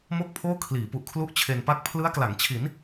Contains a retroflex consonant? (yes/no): no